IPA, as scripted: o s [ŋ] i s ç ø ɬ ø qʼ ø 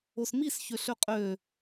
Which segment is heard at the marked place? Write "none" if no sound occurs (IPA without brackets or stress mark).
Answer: m